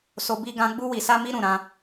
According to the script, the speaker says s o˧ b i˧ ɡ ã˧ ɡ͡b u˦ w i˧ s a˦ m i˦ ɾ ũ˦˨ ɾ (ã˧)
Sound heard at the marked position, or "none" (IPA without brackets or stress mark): ã˧